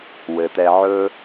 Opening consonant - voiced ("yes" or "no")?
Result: yes